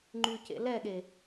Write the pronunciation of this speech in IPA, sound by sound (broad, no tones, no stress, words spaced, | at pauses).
ŋ͡ǃycḛ lɛɠe